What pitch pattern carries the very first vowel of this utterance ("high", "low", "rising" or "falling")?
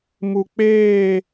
low